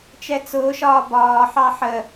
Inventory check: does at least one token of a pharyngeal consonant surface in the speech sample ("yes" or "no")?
yes